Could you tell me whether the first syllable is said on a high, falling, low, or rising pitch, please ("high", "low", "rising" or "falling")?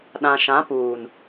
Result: low